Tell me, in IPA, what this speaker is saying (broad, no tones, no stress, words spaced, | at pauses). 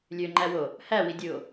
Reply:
lʲøŋ͡ǃæwo | hæwidʲɯo̯